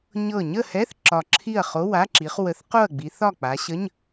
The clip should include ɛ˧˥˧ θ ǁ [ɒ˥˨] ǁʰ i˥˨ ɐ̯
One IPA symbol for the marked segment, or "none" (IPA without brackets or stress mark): ɒ˧˩